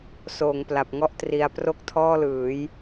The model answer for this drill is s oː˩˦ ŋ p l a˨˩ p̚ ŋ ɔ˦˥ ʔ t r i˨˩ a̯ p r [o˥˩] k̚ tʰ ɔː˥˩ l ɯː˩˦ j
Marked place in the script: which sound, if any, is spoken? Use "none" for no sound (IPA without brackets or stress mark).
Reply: o˥˩